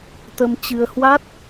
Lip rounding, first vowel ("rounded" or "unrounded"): unrounded